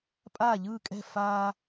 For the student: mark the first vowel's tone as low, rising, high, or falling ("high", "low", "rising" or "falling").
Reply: falling